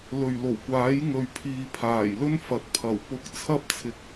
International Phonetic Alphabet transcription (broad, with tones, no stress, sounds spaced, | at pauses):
l ɵ˨˩ ɥ l o˨˩ w kʷ aː˨˥ j ŋ ɵ˨ ɥ pʰ iː˨ pʰ aː˨˩ j l ɵ˥ n f ɐ˨ t̚ pʰ ɐ˨˩ w p ʊ˧ k̚ t͡sʰ ɐ˥ p̚ t͡sʰ ɪ˨ k̚